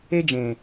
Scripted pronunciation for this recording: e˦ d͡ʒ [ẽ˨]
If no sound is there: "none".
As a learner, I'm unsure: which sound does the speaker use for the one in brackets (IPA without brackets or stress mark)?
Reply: ẽ˨